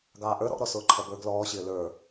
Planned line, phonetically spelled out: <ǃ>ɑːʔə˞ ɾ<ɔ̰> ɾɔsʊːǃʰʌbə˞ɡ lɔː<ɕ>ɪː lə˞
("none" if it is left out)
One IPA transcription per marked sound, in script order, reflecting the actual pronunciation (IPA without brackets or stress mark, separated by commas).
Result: ɡ, ɔ̰, ɕ